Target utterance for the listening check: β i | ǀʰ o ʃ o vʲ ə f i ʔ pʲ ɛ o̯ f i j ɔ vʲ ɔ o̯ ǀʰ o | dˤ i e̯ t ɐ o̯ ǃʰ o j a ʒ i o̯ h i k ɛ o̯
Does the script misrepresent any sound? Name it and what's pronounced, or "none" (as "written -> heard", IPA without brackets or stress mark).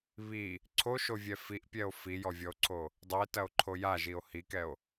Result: ə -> ɛ